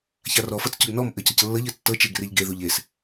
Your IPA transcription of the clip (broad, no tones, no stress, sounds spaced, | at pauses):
ç a r ɔ f ɤ t͡s c ʊ ɡ n ɔ m ʔ ɘ c ɤ c lː ɤ ʎ ɘ tː ɤ t͡ʃ e ɡ r e ʎ ɡ e ð u ʎ e s